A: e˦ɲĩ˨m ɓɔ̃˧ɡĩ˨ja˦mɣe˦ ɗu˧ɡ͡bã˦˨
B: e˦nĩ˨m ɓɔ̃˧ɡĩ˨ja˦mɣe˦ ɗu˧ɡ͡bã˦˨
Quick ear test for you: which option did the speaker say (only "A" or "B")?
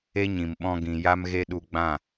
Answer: A